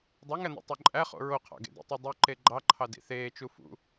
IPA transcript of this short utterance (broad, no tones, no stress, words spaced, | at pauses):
dˤøŋæn̪ḭ tˤoǃʼæχo̰ ɹoqʰɑ̰ɡḛ dḭtˤydˤy ǃeɡ͡ǃɑǃʰɑdḭ θeːt͡ʃu fṵ